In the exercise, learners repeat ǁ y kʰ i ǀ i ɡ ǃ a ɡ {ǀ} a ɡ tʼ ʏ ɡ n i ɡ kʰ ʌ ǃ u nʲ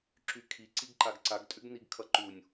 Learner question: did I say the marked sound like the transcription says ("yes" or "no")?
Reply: yes